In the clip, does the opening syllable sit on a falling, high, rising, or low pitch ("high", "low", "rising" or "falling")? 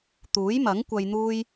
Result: rising